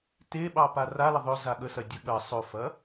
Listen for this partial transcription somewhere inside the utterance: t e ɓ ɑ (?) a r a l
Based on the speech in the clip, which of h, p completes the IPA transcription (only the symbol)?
p